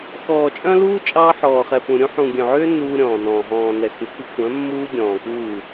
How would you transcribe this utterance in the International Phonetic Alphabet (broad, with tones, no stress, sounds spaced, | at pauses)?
x ɔː˨ t͡ʃʼ œ̃˦ l uː˦ t͡ʃʼ ɑː˦ ħ ɔː˨ χ ɛ˨ p ũ˨ ɾʲ ũ˦ ħ ũ˨ ɡʲ œ̃˨ ʕ ʏː˦ n uː˦ ɾʲ ɔ̃ː˨ n ɔ̃ː˨ ɦ ɔ̃ː˨ n ɛ˨ x ʉ˨ k ʉ˦ kʷʰ œ̃˨˦ mː uː˦ ɡʲ ɔ̃ː˨ k uː˦˨